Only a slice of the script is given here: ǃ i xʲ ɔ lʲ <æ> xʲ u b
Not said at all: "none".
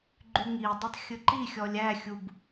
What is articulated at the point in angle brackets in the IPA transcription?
æ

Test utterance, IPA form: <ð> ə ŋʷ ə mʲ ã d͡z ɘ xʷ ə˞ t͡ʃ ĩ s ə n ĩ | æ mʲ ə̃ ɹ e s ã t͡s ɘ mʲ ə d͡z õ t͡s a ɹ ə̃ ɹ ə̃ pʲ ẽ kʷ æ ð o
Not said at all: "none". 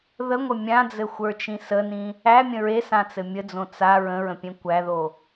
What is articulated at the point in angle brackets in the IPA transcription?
ð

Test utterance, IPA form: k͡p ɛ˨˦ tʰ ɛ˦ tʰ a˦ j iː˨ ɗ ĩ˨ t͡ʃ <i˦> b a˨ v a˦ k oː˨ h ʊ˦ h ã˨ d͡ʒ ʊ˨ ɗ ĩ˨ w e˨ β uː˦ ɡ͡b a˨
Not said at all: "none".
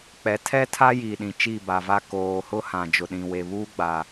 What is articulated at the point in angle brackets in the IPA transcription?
i˦˨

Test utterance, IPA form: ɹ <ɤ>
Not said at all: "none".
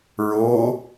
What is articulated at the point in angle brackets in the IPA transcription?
o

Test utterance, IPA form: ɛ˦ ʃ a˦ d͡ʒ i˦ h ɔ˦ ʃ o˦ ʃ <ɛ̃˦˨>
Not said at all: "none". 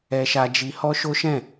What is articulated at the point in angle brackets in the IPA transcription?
ɛ̃˦˨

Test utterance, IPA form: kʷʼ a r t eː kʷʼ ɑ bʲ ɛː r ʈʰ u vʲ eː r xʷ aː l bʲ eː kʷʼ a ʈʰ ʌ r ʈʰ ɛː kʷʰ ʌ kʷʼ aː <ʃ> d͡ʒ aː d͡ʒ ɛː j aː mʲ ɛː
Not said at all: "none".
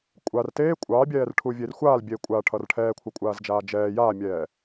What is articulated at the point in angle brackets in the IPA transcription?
z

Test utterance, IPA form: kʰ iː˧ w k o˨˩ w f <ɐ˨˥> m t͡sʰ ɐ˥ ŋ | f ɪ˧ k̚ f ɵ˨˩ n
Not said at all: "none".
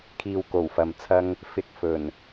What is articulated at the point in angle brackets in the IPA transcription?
ɐ˨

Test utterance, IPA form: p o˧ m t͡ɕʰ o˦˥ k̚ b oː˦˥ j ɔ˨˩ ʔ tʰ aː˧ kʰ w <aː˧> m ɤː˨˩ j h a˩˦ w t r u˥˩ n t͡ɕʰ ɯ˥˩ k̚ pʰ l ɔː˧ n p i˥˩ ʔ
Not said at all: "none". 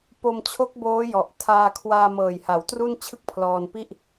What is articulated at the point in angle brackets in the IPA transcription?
aː˧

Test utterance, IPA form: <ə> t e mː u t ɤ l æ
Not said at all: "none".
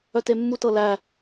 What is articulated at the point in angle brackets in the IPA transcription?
œ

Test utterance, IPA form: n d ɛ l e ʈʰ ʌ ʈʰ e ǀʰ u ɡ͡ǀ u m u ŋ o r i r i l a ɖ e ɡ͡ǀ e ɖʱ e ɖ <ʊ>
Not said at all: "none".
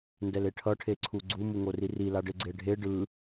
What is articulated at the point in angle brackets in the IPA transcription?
ɯ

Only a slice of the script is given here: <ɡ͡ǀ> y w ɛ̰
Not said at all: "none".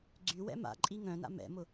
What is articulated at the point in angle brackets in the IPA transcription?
ɡ͡ǀ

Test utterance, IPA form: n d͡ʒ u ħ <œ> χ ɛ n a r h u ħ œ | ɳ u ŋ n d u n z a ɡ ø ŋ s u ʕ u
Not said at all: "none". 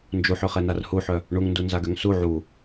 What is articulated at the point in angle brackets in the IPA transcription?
ø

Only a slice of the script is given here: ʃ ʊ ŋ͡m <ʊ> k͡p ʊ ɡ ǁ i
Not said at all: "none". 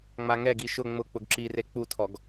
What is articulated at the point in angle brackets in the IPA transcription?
ʊ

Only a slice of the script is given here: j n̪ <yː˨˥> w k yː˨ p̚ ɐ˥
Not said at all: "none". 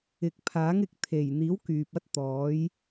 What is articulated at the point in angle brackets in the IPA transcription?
iː˨˥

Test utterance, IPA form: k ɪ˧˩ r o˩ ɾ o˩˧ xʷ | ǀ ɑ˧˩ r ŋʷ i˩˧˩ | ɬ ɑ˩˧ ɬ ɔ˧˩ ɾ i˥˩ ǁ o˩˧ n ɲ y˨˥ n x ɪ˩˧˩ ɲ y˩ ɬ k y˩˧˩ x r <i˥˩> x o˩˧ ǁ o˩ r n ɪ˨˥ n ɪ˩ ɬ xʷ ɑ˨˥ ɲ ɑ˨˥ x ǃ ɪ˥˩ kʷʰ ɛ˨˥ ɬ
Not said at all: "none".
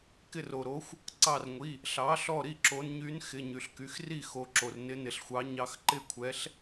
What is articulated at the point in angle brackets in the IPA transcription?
i˥˩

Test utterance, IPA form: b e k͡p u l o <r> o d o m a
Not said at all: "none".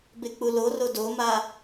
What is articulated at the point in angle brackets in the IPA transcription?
r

